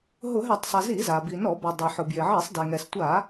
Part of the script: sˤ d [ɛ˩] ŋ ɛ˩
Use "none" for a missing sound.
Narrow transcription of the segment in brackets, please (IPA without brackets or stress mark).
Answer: ɛ˩